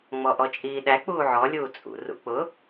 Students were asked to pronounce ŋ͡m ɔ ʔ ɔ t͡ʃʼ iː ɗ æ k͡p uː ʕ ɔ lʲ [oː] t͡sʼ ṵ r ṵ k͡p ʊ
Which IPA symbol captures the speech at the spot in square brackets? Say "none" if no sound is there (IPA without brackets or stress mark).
uː